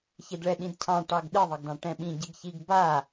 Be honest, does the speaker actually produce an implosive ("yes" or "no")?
yes